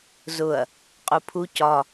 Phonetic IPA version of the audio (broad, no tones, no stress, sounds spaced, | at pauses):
z ʊ ɐ̯ | qʼ u pʰ u c ɒ